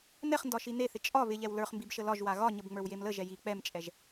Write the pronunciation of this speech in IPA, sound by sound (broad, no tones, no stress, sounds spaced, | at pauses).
n ɛ χ n d ɒ ʃ i n e θ ɪ t͡ʃʼ ɒ β ɪ ʎ ɛ w l ə˞ χ m b i b ʃ ə l ɒ ʒ w a ɣ ɒ ɲ ə b ŋ͡m ə˞ w j e m l ə ʒ ɛ j i k͡p ɛ m t͡ʃʼ ɛ ʒ